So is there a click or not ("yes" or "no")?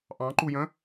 yes